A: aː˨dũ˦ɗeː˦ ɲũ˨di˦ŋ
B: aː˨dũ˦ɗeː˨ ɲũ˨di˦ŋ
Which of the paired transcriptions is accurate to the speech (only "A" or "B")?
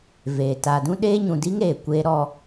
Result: A